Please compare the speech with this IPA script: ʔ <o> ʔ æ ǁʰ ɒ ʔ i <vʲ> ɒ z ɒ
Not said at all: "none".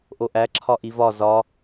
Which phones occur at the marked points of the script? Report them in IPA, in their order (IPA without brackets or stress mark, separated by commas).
o, v